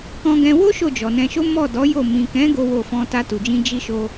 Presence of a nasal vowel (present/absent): present